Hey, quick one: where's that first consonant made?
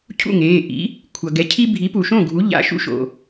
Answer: palate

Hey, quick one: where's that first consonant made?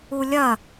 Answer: tongue tip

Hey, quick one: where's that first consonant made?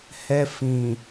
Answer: throat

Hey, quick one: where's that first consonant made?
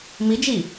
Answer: lips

